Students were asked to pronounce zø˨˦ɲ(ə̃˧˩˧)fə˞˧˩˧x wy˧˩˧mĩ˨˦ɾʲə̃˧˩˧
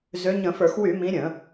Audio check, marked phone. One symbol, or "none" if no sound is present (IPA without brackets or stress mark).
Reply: ə̃˧˩˧